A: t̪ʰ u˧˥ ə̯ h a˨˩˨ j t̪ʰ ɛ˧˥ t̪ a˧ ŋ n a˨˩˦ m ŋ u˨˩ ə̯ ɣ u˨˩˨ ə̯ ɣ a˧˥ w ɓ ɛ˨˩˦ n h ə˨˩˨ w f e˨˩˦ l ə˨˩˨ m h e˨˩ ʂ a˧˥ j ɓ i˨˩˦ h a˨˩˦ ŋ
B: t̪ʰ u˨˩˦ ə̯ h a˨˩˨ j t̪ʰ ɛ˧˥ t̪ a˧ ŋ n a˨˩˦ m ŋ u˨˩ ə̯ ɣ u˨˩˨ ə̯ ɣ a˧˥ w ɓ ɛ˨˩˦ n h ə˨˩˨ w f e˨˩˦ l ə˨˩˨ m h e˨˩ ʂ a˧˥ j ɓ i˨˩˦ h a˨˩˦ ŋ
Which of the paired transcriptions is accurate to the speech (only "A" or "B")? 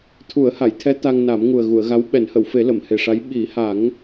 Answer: B